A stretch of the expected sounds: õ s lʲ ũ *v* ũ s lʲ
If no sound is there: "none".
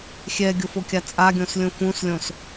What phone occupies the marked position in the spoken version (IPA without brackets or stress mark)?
f